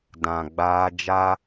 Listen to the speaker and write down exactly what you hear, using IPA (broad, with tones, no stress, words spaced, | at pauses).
dã˨ɡ͡baː˦ d͡ʒa˦